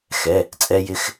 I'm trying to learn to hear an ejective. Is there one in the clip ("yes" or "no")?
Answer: yes